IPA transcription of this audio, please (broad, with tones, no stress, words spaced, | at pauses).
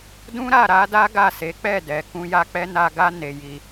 dũ˦ɾa˦˨ ɾa˨˦da˦ ɡa˦˨se˨˦ k͡pɛ˦˨dɛ˨ kũ˧ ja˦k͡pɛ˦ na˧ ɡa˦ ne˧ji˧